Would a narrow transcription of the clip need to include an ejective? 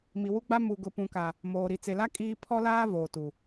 yes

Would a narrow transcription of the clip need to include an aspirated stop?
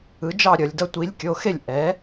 no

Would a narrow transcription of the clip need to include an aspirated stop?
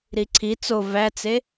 yes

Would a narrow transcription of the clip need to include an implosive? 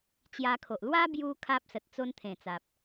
no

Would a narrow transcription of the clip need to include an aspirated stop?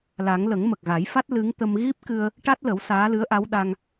no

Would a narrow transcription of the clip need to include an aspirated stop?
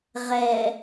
no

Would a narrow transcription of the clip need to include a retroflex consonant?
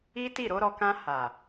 no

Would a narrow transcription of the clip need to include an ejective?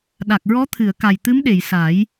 no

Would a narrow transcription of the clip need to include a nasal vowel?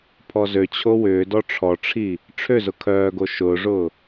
no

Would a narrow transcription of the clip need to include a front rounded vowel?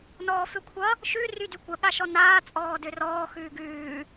yes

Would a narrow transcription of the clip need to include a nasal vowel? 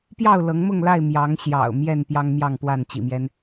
no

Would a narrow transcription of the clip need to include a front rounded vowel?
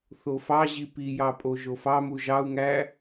no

